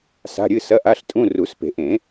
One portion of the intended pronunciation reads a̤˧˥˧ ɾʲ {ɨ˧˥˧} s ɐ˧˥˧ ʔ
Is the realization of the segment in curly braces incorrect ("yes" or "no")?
no